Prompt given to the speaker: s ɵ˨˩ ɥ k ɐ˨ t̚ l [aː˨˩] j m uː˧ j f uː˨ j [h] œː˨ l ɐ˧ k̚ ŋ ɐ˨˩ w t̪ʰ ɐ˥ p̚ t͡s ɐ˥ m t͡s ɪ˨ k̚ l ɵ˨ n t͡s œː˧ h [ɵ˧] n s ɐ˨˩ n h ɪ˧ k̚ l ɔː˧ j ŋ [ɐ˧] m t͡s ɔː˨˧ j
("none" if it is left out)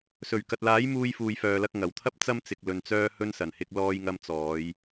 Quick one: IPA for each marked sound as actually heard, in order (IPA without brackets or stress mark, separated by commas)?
aː˨˥, f, ɵ˧, ɐ˧